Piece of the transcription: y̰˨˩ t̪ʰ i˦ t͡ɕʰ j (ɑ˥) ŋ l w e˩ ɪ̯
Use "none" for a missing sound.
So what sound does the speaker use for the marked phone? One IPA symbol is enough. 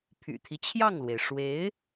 ɑ˥˩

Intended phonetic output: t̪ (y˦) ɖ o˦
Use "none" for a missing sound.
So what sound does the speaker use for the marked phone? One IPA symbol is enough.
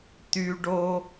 y˦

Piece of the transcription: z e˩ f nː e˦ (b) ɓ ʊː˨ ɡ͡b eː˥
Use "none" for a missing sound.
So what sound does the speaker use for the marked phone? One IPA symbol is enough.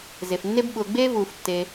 b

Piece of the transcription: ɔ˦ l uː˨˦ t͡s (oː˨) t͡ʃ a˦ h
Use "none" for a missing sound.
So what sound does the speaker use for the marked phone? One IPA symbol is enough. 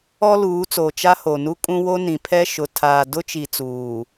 o˨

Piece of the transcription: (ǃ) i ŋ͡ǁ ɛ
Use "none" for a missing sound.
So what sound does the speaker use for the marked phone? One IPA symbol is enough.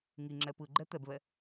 ŋ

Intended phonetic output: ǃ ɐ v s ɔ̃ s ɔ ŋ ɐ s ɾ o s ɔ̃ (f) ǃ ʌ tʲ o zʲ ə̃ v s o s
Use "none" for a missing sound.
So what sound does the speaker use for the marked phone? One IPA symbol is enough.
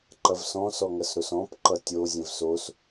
p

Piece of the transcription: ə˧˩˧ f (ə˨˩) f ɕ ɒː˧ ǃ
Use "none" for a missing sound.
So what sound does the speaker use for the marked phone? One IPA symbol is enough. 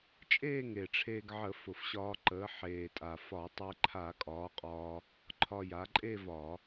ʊ˨˩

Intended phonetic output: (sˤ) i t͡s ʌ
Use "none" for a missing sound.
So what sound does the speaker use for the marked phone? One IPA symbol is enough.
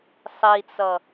sˤ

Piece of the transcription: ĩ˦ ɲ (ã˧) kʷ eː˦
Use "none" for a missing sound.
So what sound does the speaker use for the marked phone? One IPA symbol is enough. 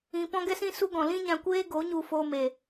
ã˧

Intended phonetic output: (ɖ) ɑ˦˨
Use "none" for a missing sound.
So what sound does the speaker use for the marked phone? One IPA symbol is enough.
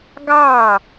ɡ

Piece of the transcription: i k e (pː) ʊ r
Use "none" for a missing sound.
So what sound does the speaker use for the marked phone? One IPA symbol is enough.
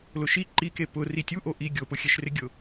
p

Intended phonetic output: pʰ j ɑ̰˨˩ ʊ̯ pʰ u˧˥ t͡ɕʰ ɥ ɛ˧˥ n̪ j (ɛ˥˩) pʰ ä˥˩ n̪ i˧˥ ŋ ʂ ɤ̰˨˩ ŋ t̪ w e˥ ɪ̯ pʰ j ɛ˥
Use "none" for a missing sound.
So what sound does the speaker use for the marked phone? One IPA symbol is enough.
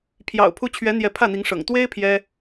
ɛ˧˥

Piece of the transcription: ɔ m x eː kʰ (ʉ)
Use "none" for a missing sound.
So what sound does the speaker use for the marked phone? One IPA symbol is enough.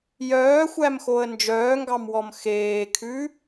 ʉ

